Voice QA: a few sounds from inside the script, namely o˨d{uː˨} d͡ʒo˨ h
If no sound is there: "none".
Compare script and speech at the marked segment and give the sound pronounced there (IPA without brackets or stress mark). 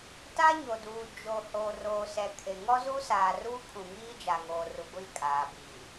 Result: uː˨